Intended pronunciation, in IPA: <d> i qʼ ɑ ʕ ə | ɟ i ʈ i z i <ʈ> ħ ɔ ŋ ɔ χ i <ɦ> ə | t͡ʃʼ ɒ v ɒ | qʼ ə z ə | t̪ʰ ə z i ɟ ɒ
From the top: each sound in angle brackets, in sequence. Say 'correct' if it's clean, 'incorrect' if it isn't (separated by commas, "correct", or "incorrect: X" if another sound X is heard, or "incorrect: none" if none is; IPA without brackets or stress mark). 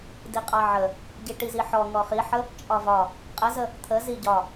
correct, incorrect: none, incorrect: ħ